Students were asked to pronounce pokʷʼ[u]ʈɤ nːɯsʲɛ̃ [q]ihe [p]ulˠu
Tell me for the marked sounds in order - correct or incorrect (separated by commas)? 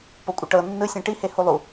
incorrect, incorrect, incorrect